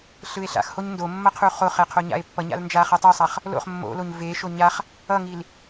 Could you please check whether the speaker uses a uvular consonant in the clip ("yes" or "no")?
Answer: yes